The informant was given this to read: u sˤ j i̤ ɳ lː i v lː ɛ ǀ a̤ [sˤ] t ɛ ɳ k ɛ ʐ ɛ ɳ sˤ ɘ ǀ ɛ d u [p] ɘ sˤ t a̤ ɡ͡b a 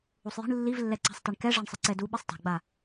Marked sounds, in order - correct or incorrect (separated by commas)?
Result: correct, incorrect